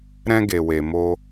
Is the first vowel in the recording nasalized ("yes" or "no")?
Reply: yes